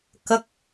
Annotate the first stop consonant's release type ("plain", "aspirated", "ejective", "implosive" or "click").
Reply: plain